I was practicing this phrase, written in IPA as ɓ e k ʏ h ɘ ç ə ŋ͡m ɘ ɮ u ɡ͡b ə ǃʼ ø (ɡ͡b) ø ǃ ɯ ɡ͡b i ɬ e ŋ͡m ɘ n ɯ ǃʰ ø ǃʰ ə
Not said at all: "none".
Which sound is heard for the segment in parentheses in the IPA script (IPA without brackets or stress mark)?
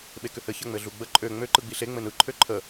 ŋ͡m